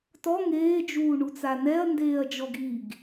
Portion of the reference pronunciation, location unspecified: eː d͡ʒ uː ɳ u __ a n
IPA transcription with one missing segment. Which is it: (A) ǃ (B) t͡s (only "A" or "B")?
B